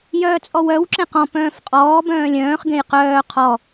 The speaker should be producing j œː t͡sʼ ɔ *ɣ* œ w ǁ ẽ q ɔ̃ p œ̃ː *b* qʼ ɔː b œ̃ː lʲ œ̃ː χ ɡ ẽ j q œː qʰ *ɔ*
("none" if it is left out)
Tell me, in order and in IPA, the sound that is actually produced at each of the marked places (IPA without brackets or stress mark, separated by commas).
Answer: w, f, ɔ